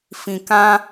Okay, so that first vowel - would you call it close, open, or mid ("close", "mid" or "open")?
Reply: close